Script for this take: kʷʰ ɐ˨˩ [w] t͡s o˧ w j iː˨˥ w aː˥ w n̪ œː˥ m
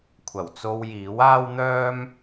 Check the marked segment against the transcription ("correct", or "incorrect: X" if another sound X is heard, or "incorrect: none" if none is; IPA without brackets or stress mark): correct